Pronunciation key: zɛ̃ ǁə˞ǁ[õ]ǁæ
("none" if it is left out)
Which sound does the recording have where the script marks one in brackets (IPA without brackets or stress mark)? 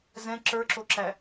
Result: o